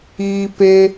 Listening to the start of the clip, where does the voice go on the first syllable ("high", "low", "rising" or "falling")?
high